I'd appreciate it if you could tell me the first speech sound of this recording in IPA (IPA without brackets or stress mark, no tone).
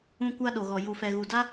ũ